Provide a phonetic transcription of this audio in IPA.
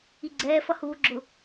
iɡ͡ǀɛːfʌ huːɡ͡ǁʊ

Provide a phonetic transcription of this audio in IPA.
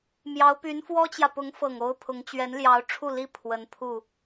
mjɑ˧˥ʊ̯py˧˥nfwɔ˥t͡ɕjä˨ pʊ˧˥ŋfɤ˨˩ŋo˧˥ʊ̯ pʰʊ˧˥ŋ t͡ɕɥɛ˧˥nljɑ˧˥ʊ̯ʈ͡ʂʰu˥˩li˥ pʰwə˧˥npʰu˥˩

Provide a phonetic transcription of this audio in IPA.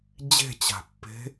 d͡ʑe̤t͡ɕa̤pːe̤

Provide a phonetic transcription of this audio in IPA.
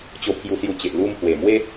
t͡ɕo˧pʰju˧sju˧t͡ɕe˨ʔ lu˧mhwe˨˩ mwe˦

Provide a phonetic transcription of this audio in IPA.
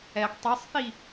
ɛɡ tˤɛsˤθi

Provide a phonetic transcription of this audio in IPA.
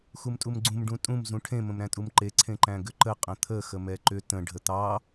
xumtʼumɡ͡ǀũm ɖũtʼũm zũʈʰẽ mə̃mɾæ̃tʼumǃe ǀʰẽǃæ̃ɡʏǃə qʼə̃t̪ʰə xəmɛǃʏ tə̃ ɖʱət̪ɑ

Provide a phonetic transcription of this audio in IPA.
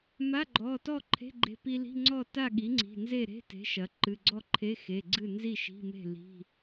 ma˧˥˧ɡ͡ǃɔ˩˧˩tɔ˥˨ ǃʰe̤˧˥˧ɡ͡ǃe̤˧ pi˧li̤˧˥˧ŋ͡ǀɔ˥˨ ta˥˨ɠi˩˥ ŋ͡ǀi̤˩˧˩nze˥˨ ɾe̤˧˥˧te̤˩˥ ʃɐ˩˥ ǃɨ˩˧˩ɡ͡ǀɔ˥˨ǃʰe˧˥˧ xe˩˧˩ɡ͡ǀɨ˥˨ nzi˥˨ʃi̤˧˥˧me̤˥˨ li̤˧˥˧

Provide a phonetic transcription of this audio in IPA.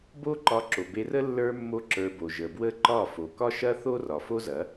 bo˦ ǃɒ˧ǁo˨be˧rə˦ lːə˞˦mːo˦ǁə˞˧bo˨ ʒə˨bwə˦ǃɒ˦˨ fo˨kɒ˦ʃɐ˦ θo˦rɒ˨ fo˦zɐ˨˦

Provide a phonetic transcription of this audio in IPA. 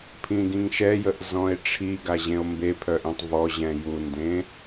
pʰĩɡĩŋʃɛjəʔ zɔ̃e̯ʈ͡ʂʰiɡa ʑẽo̯mbepʰœʔ ĩtˤvɔʑɛ̃ jundẽ

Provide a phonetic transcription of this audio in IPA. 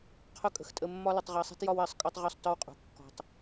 qʰʊ˧kʼə̤˨x tʼə˧mːɒ˦ lʊ˧tˤʁɜ˧sˤi̤˦tjɒ˦w ɜ˨sˤ kʼɒ˦tˤʁɔ˦˨sˤ tɒ˦wqʼṳ˨ kːɔ̤˧tˤ

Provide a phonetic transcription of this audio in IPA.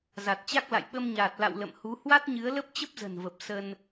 za˨˩t̚t͡ɕa˦˥k̚la̰˧˨j ɓə˧mɲaː˨˩t̚la̰˧˨w lə̰˧˨mhu˨˦ hwa˦˥t̚ɲɨ˨˦ə̯lə˦˥p̚ t͡ɕə˦˥p̚zə̤˨˩nvə˨˩p̚ sə˧n

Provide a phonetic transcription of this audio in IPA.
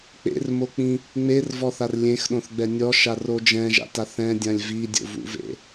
k͡pḛrmok͡pĩ | ŋ͡mervɔθar lʲẽxɗõθɡ͡bɛ nʲɔʃaro d͡ʒɛ̃ʒa̰ta θɛ̃dʲãlʲ vidʲo̰vṵvḛ

